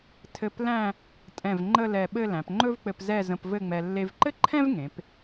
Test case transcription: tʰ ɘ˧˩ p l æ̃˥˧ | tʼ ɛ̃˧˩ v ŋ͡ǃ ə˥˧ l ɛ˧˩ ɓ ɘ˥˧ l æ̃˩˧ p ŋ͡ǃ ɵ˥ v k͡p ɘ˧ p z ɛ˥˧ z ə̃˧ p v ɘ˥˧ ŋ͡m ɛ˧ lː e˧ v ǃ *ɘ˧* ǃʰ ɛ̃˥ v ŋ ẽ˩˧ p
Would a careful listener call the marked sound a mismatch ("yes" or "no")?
yes